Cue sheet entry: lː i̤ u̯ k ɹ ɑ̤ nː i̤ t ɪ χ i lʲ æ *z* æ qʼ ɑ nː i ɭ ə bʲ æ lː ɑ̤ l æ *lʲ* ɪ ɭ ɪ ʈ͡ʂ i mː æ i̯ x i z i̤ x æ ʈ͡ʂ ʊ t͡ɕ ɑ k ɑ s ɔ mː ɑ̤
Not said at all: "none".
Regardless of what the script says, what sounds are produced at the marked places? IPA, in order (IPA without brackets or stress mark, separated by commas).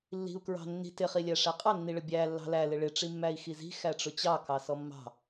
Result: ʂ, l